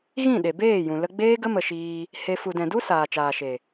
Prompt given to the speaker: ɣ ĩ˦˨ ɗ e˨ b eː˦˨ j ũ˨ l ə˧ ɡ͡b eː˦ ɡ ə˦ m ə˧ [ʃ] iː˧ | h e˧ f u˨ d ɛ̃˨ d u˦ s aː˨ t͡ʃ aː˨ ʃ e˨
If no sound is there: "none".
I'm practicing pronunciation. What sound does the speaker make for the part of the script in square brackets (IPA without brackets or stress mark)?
ʃ